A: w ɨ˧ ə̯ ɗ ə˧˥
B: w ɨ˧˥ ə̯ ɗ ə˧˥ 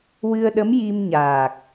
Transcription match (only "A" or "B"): A